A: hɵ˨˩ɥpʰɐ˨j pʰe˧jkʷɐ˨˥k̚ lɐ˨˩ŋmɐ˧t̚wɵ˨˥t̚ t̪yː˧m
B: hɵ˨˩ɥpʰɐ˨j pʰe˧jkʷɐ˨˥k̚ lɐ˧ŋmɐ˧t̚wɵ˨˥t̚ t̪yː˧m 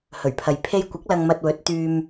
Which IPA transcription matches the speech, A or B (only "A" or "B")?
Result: B